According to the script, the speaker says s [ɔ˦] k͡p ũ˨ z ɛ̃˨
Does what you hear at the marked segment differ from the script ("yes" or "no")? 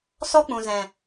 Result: no